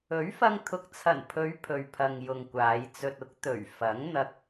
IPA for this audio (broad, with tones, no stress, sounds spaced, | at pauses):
ɵ˨˥ ɥ f ɐ˧ ŋ t̪ʰ ʊ˨ k̚ t͡sʰ ɐ˨˩ n pʰ ɵ˨˧ ɥ pʰ ɵ˨ ɥ pʰ ɐ˨ ŋ j ʊ˨ ŋ kʷ aː˨˧ j t͡s ɵ˧ t̚ ʊ˥ k̚ t̪ ɵ˨˩ ɥ f ɐ˨˥ ŋ n̪ ɐ˧ k̚